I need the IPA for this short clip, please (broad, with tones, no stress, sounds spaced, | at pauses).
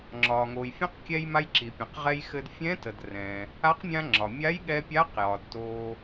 ŋ͡ǁ ɒː˩ ŋ oː˩ j fʲ ə̃˧˥ q kʲ ɛ˧ j m a˧ j ǁ i˩ pʲ ə̃˩ q ʁ ɛ˧ j x ɘ˧ d fʲ ɛ̃˧˥ t ə˩ d r ɛ̃ː˩ | a˧˥ q mʲ ã˧ ŋ͡ǁ ɒ˩ mʲ a˧˥ j ɠ ɛ˧ pʲ a˧˥ q j ɒ˩ d t oː˩